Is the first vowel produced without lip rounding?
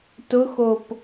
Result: no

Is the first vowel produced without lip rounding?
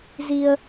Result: yes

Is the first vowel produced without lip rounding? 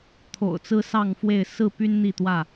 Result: no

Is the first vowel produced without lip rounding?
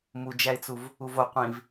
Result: no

